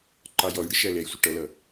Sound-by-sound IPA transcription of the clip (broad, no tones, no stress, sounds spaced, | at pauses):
ǃ ɑ j ɔ j ɽ ɪ ʃ æ l ɛ j sʷ ə ʈ ʌ l ʌ